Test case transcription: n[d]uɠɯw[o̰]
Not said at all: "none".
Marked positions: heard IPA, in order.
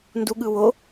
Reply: d, o

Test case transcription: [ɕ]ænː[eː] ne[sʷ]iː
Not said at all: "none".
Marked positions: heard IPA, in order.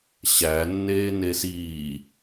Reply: ɕ, eː, s

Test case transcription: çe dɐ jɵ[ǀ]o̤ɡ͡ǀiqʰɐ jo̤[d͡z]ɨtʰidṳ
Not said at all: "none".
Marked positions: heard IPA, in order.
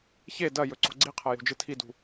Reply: ǀ, d͡ʒ

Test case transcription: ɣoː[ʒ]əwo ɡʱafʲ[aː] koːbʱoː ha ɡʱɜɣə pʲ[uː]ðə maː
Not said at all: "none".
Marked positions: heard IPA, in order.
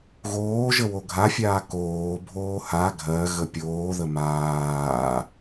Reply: ʒ, aː, oː

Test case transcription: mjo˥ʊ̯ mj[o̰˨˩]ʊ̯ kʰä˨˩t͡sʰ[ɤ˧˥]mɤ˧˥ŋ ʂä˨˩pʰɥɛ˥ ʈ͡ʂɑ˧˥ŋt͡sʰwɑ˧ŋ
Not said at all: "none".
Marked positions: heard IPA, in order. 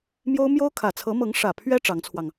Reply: o˥, ɤ˧˥

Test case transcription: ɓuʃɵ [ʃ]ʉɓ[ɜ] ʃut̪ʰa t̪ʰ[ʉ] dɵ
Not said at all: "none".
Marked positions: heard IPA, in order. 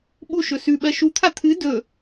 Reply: s, ɜ, ɨ

